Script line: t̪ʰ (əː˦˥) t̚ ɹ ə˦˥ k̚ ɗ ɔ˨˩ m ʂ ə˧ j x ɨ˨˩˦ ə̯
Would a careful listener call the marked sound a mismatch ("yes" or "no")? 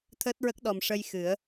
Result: no